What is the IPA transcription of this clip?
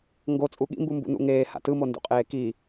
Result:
ŋ ɡ o t͡sʼ u ɠ ḭ m b u m b ṵ n ṵ ŋ eː h a̰ t ɯ m o n d ṵ qʼ eː k i

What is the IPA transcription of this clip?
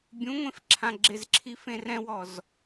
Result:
bʲ ũ ŋʷ ẽ f ǁʰ ã ɡ͡ǁ ɪ z ǁʰ i f ẽ r ɛ̃ w ɔ z

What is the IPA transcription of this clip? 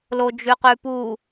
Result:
l o d͡ʒ ʉ q ʉ p u

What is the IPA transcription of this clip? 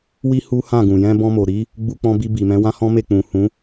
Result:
w i˦ h u˦ h ã˦˨ ɡ ũ˨ j ɛ̃˧ b ɔ̃˧ m o˨ ɾ i˨˦ | ɡ͡b u˧ k͡p ɔ̃˧ b i˧ b i˨ m ɛ̃˨˦ w ã˦ h ɔ̃˦ m e˦˨ k͡p ũ˨ h ũ˨˦

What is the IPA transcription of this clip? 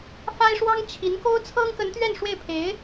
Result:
f a˥ ɪ̯ ʂ w ɑ˥ ŋ t͡ɕʰ i˧˥ n k o˥ ʊ̯ t͡sʰ ɤ˥ ŋ k ə˧˥ n t̪ ɥ ɛ˥˧ n ʂ w e˥˩ ɪ̯ pʰ e˧˥ ɪ̯

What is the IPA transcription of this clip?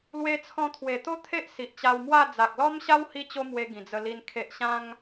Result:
l w e˧ t͡sʰ ɔ̃˧ t̪ʰ w e˨˩ t̪ o˦ t̪ʰ e˦ ʔ s i˨ ʔ t͡ɕ a˧ w m w a˥˧ d͡z a˨ k̚ l ɔ˦ m ɕ a˦ w h i˦ t͡ɕ o˦ m w e˧ ɡ ĩ˨˩ d͡z ə˧ l i˧ n kʰ e˨ ʔ ɕ ã˧ ŋ

